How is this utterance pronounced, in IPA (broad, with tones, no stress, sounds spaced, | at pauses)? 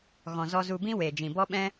ɣ ɔ̃˨ z ɔ˧ z u˧ b ĩ˦ w eː˨ d͡ʒ ĩ˨ b ɔ˦ ɓ ɛ̃˦